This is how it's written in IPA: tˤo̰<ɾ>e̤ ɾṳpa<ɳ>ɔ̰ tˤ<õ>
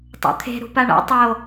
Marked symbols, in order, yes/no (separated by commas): no, yes, no